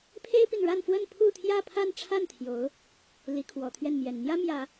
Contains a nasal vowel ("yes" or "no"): no